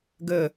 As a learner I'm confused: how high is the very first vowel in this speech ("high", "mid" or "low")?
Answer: mid